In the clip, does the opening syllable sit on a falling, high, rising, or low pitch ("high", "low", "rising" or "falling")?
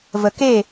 low